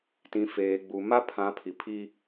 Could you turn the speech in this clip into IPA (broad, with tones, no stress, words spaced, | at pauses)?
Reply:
tĩ˨ feː˨ɡ͡bu˨ ma˦pʰã˨˦pʰi˨pʰi˦